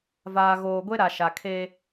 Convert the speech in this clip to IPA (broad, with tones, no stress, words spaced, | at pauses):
vaː˨ɣoː˨ɡʷe˦ɾa˨ ʃa˨kʰe˦